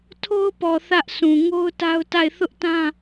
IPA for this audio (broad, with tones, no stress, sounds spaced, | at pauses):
tʰ o˦ ʊ̯ p ɔ˨ θ ä˦ ʔ sʰ ũ˨ ŋ o˦ ʊ̯ t a˦ ʊ̯ t a˦˨ ɪ̯ θ ʊ˦ ʔ t ã˦